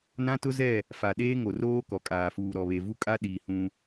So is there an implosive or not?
yes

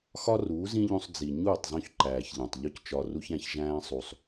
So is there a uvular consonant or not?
no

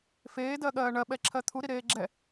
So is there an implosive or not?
yes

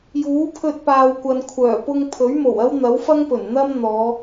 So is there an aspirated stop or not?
yes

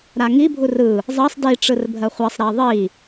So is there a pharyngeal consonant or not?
no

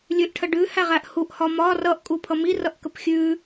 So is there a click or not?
no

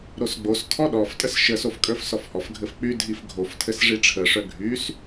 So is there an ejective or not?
yes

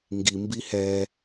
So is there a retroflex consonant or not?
no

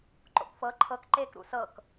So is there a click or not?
yes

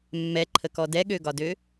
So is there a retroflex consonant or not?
no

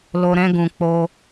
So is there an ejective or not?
no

